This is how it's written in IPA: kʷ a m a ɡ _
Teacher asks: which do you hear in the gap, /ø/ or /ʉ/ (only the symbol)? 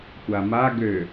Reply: ø